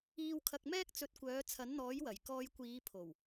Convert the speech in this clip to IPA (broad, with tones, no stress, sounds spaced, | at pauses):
iː˧ w kʰ ɐ˧ k̚ m ɛː˥ k̚ t͡s ɵ˨˥ t̚ kʷ œː˨˥ t͡sʰ ɐ˨˥ n n̪ ɔː˨˥ j w ɐ˨˩ j k ɔː˧ j kʷ iː˨˧ pʰ o˨˩ w